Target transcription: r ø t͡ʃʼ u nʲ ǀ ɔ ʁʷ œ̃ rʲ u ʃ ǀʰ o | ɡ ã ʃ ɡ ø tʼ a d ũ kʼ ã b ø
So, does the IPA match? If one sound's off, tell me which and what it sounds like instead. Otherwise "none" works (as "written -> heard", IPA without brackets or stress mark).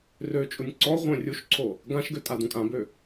none